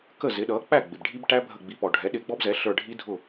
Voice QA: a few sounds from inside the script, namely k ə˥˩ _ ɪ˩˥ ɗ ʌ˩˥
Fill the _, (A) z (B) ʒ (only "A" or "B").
A